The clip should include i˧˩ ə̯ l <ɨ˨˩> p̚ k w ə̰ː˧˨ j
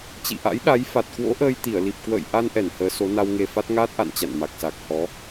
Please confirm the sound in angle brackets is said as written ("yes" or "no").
no